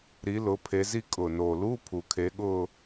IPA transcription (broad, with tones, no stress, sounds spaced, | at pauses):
ɾ i˨˦ l ʊː˨˦ pʰ e˨˦ z i˥˧ kʼ ʊː˨˩ n oː˨˩ l uː˧˥˧ pʰ u˨˩˦ kʰ eː˨˦ ɠ ʊː˥˧